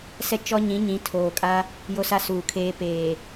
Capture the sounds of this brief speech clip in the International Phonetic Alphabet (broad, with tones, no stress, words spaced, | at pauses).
sɛ˦t͡ʃɔ˦ɲĩ˨˦ ɲĩ˨˦tʰoː˨kʼa˦ | jo˦sa˦suː˨kʰeː˦ peː˨